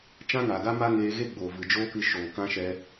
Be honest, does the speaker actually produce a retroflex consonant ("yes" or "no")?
no